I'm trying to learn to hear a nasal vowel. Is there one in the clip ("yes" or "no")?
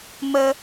no